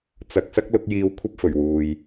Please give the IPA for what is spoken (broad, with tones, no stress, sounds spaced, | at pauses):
t͡s ɐ˧ k̚ s ɐ˥ k̚ l ʊ˨˥ k̚ j iː˧ w kʷʰ ɐ˥ p̚ f ɵ˨˩ ɥ w uː˨ j